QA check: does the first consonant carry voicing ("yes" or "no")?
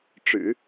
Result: no